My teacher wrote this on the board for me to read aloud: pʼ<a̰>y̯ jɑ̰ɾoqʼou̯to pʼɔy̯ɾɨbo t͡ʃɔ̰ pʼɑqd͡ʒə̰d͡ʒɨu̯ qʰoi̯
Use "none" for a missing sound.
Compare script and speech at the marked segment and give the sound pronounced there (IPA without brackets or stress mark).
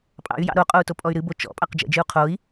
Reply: ɑ̰